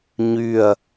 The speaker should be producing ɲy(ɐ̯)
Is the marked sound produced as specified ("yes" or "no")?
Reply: yes